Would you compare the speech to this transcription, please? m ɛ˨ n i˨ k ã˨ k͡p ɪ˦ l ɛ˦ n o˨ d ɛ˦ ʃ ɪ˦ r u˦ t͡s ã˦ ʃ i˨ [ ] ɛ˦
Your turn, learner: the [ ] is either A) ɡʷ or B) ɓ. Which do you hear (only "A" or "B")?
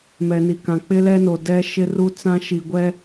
A